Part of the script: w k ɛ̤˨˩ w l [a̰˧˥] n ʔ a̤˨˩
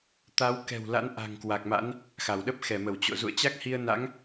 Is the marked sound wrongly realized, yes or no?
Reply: no